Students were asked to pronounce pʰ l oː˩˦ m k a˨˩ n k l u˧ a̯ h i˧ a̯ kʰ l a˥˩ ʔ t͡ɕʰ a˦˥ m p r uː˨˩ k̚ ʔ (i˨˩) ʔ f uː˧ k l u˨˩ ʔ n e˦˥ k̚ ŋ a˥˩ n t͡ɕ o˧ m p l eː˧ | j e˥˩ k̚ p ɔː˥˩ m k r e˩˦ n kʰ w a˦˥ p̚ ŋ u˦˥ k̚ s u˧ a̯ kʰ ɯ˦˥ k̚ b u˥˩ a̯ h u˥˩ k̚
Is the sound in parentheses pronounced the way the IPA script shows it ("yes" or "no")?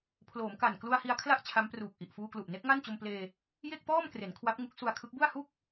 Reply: yes